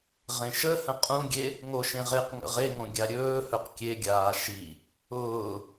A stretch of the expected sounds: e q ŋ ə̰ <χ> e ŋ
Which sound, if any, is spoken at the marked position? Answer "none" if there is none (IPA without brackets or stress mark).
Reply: ʁ